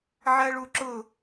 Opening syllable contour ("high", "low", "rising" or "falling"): high